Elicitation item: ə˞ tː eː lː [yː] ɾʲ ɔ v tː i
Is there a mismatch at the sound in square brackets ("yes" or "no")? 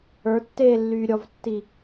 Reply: no